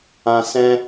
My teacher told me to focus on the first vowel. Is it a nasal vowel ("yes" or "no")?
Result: yes